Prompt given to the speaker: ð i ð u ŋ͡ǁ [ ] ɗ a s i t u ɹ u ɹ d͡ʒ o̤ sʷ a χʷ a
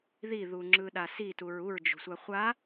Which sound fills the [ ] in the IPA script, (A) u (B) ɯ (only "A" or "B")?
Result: B